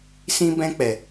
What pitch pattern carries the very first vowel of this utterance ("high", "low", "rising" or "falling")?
high